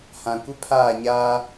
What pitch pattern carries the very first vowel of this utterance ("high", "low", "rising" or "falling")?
low